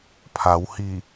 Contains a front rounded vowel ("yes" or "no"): no